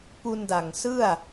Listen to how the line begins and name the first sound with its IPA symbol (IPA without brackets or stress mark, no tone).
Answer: p